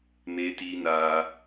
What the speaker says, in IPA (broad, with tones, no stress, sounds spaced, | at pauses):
m eː˦ t iː˦ n aː˧